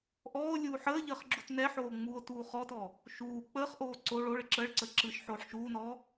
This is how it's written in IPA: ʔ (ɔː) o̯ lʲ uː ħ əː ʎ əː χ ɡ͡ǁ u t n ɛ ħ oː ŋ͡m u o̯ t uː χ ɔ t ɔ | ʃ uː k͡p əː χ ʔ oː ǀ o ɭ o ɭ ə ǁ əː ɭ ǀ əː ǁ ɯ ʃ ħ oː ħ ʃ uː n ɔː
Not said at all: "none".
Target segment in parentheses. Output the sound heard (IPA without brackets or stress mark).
ɔː